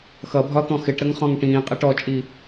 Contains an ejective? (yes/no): yes